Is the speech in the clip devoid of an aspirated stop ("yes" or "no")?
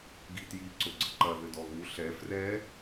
yes